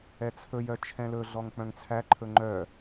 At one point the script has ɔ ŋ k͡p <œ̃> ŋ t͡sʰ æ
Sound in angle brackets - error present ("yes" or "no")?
no